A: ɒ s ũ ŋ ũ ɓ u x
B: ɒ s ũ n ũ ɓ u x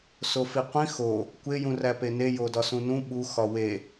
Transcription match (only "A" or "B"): B